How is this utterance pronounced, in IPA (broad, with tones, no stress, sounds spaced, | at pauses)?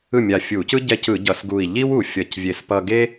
ɯ˥˩ mʲ a˧˩ fʲ u˧˩˧ c ɯ˥ ɟ ɛ˧ c ɯ˧˩˧ ɟ ʌ˧˩˧ s ɡ u˧˩ i̯ ʎ i˥ w u˧˩ fʲ ʌ˧˩ c vʲ e˧ s p ʌ˧ ɡ e˥